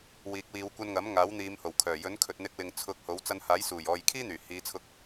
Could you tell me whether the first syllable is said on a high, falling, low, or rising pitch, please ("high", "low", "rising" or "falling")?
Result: rising